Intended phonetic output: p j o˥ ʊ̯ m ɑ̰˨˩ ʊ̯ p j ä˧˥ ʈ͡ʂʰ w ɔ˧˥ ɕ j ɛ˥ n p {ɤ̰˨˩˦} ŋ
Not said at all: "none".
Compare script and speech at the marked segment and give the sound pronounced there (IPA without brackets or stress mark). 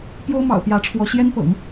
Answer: ɤ̰˨˩˦